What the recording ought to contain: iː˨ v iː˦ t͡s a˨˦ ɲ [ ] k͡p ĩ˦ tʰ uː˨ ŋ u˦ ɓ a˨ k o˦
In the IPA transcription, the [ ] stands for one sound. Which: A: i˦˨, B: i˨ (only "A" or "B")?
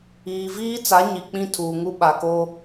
B